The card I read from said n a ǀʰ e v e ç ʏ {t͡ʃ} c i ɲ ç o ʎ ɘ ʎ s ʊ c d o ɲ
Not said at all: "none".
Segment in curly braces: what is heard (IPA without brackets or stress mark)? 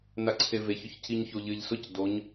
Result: ç